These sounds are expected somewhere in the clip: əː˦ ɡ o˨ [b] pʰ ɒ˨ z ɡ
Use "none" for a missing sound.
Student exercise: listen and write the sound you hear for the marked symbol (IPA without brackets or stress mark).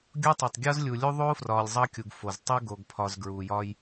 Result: ɡ